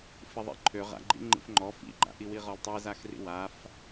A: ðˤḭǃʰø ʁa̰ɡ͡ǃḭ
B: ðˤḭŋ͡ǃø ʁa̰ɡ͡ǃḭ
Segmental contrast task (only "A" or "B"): A